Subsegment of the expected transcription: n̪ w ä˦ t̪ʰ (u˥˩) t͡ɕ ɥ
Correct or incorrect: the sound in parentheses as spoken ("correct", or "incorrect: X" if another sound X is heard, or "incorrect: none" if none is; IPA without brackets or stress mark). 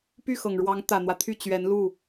incorrect: y˥˩